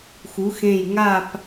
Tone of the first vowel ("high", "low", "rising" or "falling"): rising